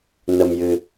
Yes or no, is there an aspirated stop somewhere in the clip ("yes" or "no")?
no